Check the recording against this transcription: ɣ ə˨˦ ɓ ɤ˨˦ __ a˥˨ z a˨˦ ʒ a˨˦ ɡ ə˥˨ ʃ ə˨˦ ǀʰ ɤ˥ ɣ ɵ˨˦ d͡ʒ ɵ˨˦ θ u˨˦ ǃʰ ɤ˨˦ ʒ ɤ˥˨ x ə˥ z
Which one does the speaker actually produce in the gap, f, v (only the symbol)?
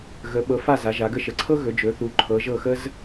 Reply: f